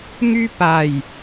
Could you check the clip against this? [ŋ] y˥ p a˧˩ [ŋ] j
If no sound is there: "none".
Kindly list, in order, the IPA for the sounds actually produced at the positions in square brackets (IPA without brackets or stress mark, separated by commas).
ŋ, none